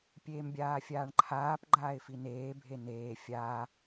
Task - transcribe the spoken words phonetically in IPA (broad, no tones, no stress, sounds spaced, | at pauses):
pʲ eː m bʲ aː fʲ aː ɳ ǃʰ aː p ɡ͡ǃ aː ɪ̯ f i n eː bʱ e n eː fʲ a